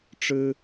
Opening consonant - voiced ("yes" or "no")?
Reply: no